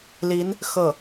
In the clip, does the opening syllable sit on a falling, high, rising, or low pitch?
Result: rising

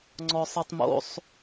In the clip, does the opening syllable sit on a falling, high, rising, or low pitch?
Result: high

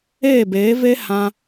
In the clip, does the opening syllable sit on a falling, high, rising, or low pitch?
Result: falling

